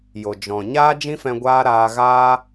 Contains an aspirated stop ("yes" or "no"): no